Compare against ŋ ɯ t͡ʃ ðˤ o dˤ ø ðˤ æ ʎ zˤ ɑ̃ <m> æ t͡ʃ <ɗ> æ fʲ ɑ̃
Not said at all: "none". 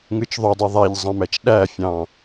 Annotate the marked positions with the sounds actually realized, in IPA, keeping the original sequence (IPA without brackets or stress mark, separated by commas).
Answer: m, ɗ